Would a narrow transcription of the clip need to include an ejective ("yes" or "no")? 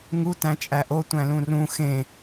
yes